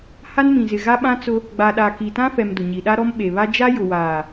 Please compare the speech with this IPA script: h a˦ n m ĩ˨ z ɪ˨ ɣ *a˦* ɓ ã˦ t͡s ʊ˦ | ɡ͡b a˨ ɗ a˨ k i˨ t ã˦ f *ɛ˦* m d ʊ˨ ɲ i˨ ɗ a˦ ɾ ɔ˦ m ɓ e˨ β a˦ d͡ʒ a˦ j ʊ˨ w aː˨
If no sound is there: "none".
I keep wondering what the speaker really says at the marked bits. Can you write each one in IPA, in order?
a˦, ɛ˨

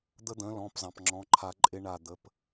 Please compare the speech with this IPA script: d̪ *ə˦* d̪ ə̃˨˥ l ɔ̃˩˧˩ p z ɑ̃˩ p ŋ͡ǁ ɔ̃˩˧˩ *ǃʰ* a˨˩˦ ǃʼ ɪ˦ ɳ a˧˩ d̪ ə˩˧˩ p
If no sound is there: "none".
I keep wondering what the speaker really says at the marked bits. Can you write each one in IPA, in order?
ə˦, ǃʰ

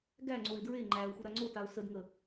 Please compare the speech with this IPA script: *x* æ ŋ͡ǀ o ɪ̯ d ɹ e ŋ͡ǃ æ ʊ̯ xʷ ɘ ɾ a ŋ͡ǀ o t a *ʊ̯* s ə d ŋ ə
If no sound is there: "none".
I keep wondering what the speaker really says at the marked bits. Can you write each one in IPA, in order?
ɡ, ʊ̯

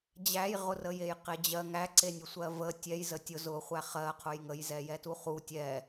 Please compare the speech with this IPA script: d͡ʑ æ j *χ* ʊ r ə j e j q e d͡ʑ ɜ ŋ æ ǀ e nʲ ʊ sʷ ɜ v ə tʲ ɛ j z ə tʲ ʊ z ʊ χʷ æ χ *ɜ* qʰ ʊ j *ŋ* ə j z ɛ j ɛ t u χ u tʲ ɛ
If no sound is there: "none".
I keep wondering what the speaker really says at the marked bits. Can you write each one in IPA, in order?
ʁ, ɜ, ŋ

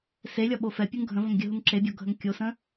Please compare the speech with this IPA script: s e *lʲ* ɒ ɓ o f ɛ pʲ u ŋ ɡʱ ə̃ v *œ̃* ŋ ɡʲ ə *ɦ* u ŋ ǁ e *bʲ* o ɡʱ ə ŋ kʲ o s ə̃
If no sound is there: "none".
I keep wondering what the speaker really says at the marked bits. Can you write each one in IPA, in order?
lʲ, ə̃, ɦ, bʲ

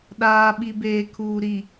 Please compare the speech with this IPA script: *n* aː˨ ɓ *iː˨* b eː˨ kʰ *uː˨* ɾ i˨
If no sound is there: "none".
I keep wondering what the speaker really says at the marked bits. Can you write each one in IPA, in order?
ɗ, i˨, uː˨

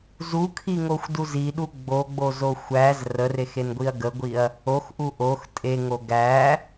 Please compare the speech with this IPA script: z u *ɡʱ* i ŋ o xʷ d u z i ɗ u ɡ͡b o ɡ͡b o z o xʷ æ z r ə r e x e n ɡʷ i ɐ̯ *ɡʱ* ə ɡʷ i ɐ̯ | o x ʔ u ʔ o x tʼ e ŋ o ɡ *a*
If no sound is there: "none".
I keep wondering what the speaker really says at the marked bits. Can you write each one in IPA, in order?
kʰ, ɡ, æ

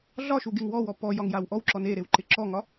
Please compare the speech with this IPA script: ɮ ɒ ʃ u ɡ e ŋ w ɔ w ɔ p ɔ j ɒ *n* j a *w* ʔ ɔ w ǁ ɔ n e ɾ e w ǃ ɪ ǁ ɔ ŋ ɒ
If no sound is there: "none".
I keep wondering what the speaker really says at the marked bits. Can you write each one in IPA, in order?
ŋ, w

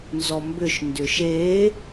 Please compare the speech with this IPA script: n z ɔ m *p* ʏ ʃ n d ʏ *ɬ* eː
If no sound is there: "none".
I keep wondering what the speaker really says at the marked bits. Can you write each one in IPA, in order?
b, ʃ

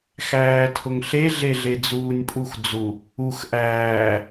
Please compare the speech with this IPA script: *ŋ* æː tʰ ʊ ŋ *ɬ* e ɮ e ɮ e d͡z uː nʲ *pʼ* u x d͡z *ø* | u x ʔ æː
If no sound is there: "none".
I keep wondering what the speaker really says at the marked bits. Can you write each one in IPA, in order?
x, ɬ, pʼ, u

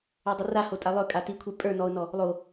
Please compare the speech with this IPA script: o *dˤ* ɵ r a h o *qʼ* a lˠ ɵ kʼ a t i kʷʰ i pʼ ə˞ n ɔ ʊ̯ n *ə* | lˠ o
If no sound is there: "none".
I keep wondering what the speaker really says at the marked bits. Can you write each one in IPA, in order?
dˤ, tʼ, ɔ

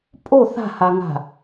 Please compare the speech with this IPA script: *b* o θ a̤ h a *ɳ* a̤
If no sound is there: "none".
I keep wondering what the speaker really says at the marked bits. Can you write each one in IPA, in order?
pʼ, ŋ

